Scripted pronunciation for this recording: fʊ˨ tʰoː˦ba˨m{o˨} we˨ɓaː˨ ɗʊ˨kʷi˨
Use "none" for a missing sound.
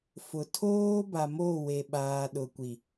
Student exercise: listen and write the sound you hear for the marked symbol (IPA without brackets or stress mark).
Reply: o˦˨